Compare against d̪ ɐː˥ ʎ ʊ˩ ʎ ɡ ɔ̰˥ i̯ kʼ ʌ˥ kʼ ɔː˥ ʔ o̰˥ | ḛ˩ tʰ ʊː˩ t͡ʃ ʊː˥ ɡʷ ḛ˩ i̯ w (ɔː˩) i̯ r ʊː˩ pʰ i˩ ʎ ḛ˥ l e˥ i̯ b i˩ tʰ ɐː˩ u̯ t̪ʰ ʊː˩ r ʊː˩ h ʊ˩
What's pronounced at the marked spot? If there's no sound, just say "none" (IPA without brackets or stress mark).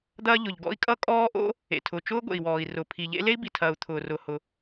ɔː˩